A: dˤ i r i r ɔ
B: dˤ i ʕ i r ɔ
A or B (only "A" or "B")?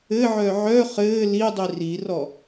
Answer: A